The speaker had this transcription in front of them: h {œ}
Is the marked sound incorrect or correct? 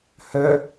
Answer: correct